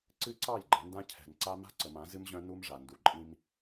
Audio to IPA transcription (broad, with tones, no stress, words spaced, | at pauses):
ǀɨ˦ǀɑ˦˨j ɡ͡ǃə̃˨˦ndã˦ cʰɛ̤˨n ǀa˦ ma̤˦ǀə˨mã˨˦ zɨ˦mʑœ̃˦ nu˦mʐa˨ndu˨ ǃʼĩ˦m